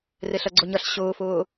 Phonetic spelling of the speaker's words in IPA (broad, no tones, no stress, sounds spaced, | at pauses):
r e ɬ ɐ ɡ͡ǀ ʊ ɲ ɐ ɬ ɕ ʊː f ʊː